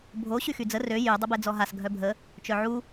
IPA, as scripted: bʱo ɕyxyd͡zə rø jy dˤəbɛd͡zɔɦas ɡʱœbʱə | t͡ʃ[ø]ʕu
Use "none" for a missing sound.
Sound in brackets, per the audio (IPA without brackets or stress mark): œ